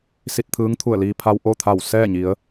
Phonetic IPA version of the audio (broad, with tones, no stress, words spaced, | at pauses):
si˧t̚t̪ʰɯː˧˥ŋ t̪ʰu˧˩ə̯liː˧ pʰa˧w ʔo˥˨t̪ʰa˧˩w sɛː˥˨ɲi˩˧ə̯